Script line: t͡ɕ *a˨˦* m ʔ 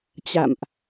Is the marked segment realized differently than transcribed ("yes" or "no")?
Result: yes